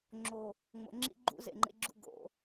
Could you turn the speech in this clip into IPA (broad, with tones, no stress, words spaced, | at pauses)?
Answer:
ŋ͡ǁo˨ | ŋ͡mo̰˨ ŋ͡ǁḭ˦ ɡ͡ǃṵ˦zḛ˨ŋ͡ǃḛ˦ɡ͡ǁṵ˦ ɡo̰˨˦